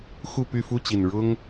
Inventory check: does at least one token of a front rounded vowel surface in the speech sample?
yes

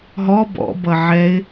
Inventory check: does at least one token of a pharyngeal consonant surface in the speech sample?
yes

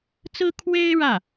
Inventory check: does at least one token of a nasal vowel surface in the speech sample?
no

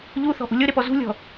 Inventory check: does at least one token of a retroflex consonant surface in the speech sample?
no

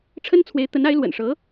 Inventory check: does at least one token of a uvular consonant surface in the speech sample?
no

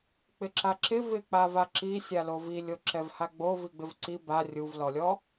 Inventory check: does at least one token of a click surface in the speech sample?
yes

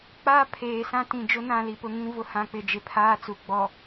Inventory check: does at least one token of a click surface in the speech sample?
no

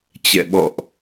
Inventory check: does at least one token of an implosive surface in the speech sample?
yes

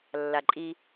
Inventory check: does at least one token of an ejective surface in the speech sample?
yes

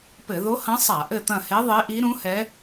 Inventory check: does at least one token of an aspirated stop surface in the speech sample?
no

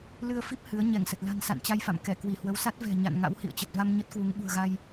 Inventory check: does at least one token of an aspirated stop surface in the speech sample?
no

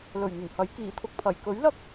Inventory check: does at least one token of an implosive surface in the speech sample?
no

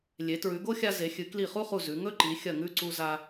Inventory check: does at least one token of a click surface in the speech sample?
yes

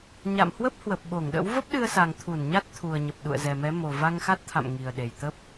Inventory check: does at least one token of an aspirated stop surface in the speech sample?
yes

